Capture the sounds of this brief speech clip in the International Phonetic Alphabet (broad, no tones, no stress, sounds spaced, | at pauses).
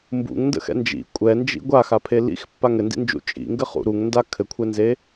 m b ṵ ŋ n d ə̰ x ɛ̰ n d͡ʒ ḭ kʷʼ ɛ n d͡ʒ ḭ ɡʷ a x a pʰ e l ḭ x pː a ŋ ɘ n d ḭ n d͡ʒ ṵ t͡ʃʼ ḭ ŋ ɡ ɘ χ ṵ ɾ u ŋ n d a kʰ ɘ kʷʰ ɛ n z e